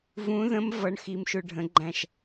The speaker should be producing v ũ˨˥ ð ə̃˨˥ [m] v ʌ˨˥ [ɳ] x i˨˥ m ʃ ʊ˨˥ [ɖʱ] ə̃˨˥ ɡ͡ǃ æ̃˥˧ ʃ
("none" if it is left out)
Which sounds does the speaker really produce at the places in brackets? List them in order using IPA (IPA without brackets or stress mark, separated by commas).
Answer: m, ɳ, ɖʱ